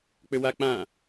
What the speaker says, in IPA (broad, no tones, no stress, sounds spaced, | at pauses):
k͡p ʏ w a k͡p ã